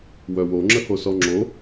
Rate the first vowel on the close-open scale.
mid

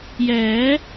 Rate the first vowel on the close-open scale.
mid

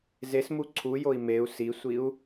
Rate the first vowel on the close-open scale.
mid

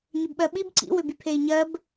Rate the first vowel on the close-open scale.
close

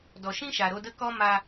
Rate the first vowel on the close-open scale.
mid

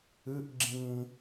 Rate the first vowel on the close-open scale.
close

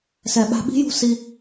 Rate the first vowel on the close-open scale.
mid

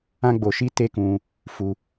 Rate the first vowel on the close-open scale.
open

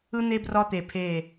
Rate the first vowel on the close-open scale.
close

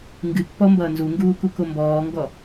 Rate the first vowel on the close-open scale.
close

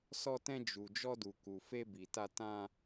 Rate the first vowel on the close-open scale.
mid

